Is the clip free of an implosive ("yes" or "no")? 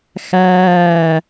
yes